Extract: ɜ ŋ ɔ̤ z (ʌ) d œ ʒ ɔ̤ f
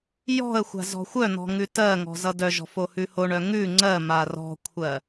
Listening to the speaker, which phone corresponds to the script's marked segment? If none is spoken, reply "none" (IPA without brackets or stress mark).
ʌ